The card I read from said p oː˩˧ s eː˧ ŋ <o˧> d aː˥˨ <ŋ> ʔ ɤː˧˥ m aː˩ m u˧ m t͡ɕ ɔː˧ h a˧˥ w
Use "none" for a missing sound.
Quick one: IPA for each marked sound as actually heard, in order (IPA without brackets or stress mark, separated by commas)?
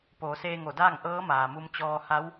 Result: o˧˩, ŋ